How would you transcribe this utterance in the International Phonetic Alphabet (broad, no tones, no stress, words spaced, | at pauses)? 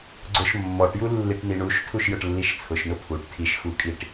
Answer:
ɡ͡ǀʊʃ mːɔʈju lːiʈniɳuʃtʰuʃ jʊʈlːiʃt͡sʰʊʃnʊ pʰuʈ tʰiʃxukʼiʈ